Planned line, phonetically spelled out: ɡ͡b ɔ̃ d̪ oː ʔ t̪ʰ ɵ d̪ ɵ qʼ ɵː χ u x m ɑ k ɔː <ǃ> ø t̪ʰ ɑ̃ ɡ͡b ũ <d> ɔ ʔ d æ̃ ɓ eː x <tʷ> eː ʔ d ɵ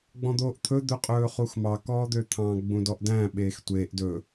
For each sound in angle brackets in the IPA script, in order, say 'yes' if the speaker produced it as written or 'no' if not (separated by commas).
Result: no, yes, yes